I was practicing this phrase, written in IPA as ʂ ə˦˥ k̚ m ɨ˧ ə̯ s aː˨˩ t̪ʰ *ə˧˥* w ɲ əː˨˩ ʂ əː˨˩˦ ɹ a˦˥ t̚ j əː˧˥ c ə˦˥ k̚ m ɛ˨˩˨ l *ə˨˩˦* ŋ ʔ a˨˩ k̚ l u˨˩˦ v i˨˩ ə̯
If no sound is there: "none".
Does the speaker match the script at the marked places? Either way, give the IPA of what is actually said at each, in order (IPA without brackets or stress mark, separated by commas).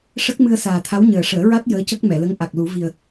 a˧˥, ə˧˥